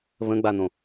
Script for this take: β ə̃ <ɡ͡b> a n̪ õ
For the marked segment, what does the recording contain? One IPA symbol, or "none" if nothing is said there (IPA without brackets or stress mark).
ɡ͡b